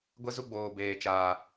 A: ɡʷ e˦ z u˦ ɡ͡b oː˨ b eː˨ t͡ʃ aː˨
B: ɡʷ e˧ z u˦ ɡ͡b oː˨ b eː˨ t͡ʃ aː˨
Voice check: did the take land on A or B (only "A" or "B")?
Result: A